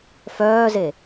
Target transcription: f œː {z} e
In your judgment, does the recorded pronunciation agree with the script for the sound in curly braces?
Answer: yes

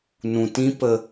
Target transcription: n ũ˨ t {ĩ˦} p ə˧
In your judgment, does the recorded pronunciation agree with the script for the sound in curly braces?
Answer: yes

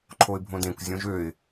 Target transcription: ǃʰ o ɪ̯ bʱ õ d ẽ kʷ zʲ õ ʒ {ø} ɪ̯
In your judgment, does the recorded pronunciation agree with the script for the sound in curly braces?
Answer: yes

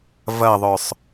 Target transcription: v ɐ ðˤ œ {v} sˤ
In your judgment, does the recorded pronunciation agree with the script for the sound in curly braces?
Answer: no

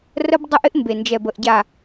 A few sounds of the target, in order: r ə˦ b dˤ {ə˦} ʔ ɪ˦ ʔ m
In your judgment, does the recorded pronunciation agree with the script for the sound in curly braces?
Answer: yes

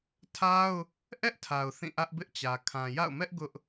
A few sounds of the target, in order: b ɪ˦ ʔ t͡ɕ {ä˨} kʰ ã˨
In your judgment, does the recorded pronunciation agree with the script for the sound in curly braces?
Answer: yes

